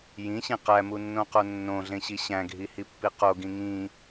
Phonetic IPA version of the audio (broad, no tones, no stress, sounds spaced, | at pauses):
j ĩ ɕ ĩ q æ m u nː õ q o nː õ ɮ ẽ ɕ i ɕ æ̃ ɡʱ i h i pː i q o ɡ ĩ ŋ ĩ